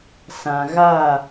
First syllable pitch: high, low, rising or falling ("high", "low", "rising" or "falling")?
low